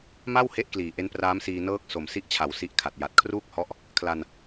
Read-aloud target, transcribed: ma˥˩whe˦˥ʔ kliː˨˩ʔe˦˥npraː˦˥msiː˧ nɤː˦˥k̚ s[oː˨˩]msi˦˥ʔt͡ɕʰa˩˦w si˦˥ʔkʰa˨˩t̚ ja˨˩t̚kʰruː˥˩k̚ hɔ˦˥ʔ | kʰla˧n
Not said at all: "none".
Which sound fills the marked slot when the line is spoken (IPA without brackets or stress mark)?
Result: o˨˩